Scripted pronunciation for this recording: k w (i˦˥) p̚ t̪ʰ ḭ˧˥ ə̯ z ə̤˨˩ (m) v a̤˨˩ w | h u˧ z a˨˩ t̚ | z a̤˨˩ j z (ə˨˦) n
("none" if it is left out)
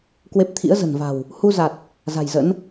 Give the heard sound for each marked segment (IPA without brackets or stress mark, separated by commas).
e˦˥, n, ə̰˧˥